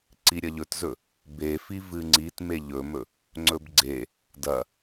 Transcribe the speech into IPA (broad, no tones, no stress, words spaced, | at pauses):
ǀiɾʲɐʎɵtzɵ | befi vɨŋ͡ǀit meʎɵmɵ | ŋ͡ǀɵbɡ͡ǀe | dɐ